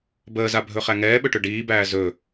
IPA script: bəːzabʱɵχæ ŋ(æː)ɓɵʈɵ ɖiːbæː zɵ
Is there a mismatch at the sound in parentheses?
yes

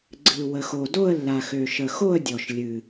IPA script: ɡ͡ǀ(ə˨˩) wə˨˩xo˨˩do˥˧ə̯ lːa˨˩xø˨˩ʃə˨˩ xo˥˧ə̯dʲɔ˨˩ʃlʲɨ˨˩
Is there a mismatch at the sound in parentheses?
yes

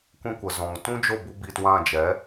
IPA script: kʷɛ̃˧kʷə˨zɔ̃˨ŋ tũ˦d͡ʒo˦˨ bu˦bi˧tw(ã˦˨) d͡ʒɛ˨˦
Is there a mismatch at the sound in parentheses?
no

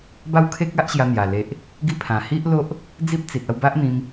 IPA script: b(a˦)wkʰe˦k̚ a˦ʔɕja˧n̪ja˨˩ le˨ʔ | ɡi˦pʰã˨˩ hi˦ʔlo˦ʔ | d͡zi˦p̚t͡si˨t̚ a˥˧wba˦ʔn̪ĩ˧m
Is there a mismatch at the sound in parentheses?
no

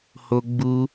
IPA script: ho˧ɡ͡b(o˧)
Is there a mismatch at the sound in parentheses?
yes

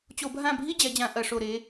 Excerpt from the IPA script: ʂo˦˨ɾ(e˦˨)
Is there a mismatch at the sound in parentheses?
yes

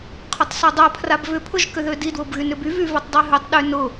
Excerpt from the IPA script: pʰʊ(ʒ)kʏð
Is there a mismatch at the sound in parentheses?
no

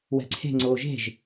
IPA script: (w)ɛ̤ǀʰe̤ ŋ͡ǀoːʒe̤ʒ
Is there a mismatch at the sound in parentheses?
no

